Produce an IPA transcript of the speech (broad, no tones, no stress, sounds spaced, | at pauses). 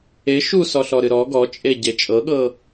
e ʃ u s ɔ ɬ ɔ ɾ ɨ ɾ ɔ ɡ ɔ t͡ʃʼ e ɟ e t͡ʃʼ ɤ ɠ ɤ